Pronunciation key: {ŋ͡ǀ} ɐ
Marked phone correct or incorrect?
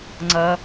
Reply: correct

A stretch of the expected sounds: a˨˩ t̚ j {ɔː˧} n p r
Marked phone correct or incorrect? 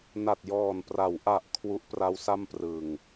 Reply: incorrect: ɔː˨˩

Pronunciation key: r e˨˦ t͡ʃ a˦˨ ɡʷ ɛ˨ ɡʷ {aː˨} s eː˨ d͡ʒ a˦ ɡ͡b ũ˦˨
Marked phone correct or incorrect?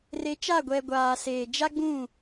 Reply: correct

